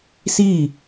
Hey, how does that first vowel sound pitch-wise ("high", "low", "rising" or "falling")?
falling